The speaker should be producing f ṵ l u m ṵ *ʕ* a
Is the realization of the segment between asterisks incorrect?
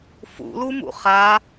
yes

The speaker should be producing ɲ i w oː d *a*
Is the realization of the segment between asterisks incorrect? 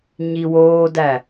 yes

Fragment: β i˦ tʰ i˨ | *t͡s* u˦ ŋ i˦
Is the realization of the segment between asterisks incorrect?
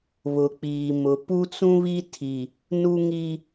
yes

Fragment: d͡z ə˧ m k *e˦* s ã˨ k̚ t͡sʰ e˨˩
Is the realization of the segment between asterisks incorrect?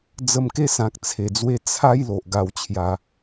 no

